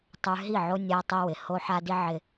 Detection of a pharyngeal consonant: present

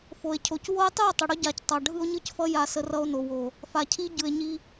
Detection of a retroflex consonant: present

